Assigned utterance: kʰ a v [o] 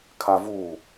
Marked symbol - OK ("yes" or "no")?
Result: no